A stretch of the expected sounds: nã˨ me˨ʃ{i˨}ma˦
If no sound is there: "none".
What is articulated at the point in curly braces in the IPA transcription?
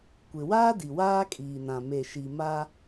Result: i˨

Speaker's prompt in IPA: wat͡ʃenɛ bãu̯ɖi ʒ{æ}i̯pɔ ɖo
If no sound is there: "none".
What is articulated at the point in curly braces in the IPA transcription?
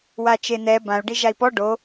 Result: a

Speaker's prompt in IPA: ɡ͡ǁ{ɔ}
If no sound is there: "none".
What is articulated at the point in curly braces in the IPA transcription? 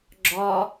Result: ɔ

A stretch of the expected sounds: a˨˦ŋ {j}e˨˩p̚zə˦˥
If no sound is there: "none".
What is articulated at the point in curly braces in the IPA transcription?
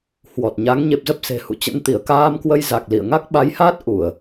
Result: ɲ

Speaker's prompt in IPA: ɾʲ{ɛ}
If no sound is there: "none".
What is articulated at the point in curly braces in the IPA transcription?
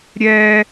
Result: ɛ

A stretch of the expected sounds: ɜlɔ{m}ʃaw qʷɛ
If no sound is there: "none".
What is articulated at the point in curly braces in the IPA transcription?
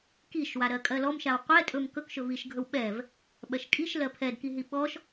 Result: m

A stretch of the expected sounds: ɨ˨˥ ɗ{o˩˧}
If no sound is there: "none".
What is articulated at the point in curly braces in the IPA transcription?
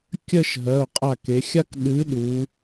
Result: u˩˧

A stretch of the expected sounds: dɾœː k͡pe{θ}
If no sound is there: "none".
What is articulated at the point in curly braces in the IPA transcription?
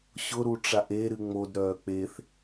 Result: θ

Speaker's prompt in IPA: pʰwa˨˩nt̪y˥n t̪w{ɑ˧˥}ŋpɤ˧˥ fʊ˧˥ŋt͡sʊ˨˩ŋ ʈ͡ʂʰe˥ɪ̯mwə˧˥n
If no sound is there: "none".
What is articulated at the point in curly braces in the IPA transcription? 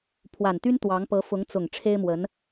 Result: ɑ˧˥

